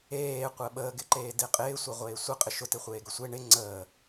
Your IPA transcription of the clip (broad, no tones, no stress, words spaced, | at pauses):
eːqʷəː ɓəːɡɪǃeː dɪqʼɪːsʷe ʁʷeːsʷə qʼɪʃʊ teχʷeːɡɵsʷe ɳɪ ŋ͡ǀəː